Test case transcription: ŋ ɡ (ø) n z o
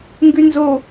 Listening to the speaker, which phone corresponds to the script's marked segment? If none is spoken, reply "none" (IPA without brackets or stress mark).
ʉ